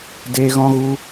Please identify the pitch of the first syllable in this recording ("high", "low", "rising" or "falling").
high